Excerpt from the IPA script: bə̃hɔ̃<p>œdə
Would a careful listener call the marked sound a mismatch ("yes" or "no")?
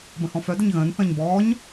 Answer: yes